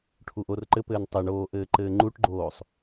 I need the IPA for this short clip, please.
ʈʰ u ʔ o r ǃ ɘ p ɘː n tˤ ɘ ɳ oː ʔ ɘː ǃ ɘː ŋ͡ǃ u ʈ ɡ͡ǃ oː sˤ

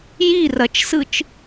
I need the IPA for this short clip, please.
j i r ɐ t͡ʃ s ɯ t͡ʃ

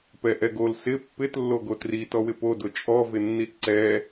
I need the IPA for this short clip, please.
p ɛ ʔ ɛ ɡ o l s ɪ pː ɪ t lː o ɡ o t r i t ɔ w ɪ p o d ʊ t͡ʃʼ ɔ v ɪ nː i t ǀ ɛ

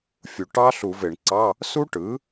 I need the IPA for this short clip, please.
fʲ u˩ ʈ ɑ˦˥ ɬ u˧˩˧ v e˧˩˧ ɳ ǀ ɑ˧˥˧ | s u˦˥ ʈ ɯ˩˥

